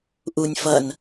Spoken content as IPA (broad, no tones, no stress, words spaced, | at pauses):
ʔunʲ fʌn